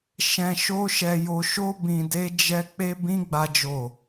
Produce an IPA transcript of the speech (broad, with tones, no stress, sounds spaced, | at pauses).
ʃ ɛ̃˧ ʃ o˦ ʃ ɛ˧ j o˧ ʃ o˦ b ĩ˧ d e˦ d͡ʒ ɛ˦ k͡p e˦ b ĩ˦ ɡ͡b a˦ d͡ʒ o˦˨